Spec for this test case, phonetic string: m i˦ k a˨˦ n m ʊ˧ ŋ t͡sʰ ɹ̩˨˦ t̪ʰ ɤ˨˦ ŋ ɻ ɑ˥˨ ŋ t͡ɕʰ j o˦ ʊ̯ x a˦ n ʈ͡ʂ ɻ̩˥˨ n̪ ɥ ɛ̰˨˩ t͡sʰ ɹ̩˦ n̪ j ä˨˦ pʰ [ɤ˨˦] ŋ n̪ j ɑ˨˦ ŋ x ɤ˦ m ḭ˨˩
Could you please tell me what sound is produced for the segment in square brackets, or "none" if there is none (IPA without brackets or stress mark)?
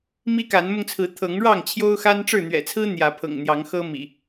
ɤ̰˨˩